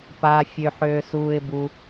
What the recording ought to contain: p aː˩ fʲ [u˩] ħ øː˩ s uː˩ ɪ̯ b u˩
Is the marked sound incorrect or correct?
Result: incorrect